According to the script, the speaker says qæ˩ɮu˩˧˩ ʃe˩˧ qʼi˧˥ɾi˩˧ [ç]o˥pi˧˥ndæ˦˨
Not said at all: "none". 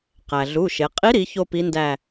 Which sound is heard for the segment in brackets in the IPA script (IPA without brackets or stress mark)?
ç